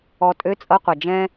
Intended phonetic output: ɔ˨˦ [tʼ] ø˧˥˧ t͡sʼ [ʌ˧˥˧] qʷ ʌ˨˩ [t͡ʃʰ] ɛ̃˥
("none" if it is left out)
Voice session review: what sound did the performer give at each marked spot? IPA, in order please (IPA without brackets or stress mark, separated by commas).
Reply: tʼ, ʌ˧˥˧, d͡ʒ